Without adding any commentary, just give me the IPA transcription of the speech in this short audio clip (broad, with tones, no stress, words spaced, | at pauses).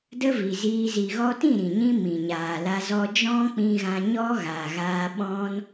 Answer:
də˦vi˨ziː˧ zi˨ɣɔ˧tĩ˦˨ ɾĩ˨ɲĩ˦mĩ˨ ɲaː˨la˧ zɔ˧d͡ʒɔ̃˦k͡pĩ˧ ɣã˧ɲɔ˦ɣaː˨ɣaː˧ ɓɔ̃˧n